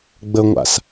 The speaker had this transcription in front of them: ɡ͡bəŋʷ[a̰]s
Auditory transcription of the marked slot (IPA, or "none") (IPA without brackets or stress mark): a̰